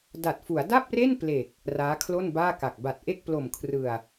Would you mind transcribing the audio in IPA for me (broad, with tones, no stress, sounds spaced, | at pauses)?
d a˨˩ t̚ f u˩˦ a̯ d a˥˩ p̚ r e˥˩ n p l e˨˩ k̚ | r aː˦˥ kʰ l o˥˩ n b aː˥˩ k a˨˩ k̚ b a˨˩ t̚ ʔ e˥˩ k̚ p l o˨˩ m kʰ r ɯ˨˩ a̯